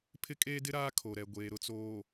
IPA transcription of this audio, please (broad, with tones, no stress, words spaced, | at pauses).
pʰɪ˦kʼeː˦dɪ˦ ɾaː˦kʰo˨ɾɛ˨ ɡʷeː˨ɾʊ˨t͡soː˨